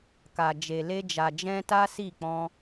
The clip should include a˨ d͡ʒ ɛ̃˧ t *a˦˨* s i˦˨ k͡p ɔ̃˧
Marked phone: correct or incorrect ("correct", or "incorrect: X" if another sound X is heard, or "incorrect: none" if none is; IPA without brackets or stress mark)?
incorrect: a˦